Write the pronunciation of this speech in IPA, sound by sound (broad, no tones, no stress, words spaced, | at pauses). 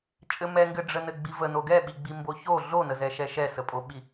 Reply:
t͡ʃʼɘmɛŋɡɘ ɖ͡ʐənɘɡ͡bivə noɡɛɓiɡ͡bi mboço ɮonəzɛʃɛ ʃɛsəpʼoɓi